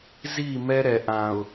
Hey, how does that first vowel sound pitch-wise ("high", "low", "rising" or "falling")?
falling